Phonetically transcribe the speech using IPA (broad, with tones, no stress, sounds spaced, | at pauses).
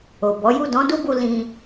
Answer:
o˨ b ɔ˨˦ j u˦˨ d ɔ̃˨˦ d u˦ b u˧ l ĩ˧